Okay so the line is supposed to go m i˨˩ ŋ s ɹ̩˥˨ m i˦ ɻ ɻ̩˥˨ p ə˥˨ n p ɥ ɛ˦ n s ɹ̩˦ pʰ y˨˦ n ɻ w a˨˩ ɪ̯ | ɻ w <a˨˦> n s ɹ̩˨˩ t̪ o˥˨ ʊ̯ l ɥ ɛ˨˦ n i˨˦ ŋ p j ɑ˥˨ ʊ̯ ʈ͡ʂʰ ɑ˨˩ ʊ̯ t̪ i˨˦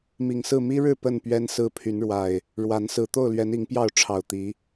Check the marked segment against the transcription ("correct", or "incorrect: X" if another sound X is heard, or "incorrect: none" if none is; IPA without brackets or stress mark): correct